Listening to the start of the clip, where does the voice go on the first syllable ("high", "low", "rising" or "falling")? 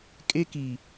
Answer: high